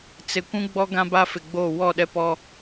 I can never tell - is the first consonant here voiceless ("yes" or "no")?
yes